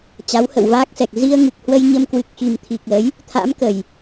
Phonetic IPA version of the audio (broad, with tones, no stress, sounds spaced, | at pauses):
t͡ɕ a˨˦ w h ə̰˧˨ w v aː˦˥ k̚ s ɛ˨˩ k̚ z i˧ ə̯ ŋ ɨ˨˩ k̚ h w ə˧ j ɲ ə˧ m k w ɨ˨˩ k̚ x i˨˩ m t̪ʰ i˨˩ k̚ l ə˨˦ j | t̪ʰ a̰˧˥ m k ə˨˩ j